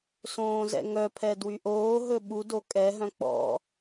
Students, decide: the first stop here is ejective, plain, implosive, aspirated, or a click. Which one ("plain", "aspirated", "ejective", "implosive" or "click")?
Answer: aspirated